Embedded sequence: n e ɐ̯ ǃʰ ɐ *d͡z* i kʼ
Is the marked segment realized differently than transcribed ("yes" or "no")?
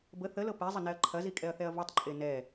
yes